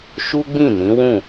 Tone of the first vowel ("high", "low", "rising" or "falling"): high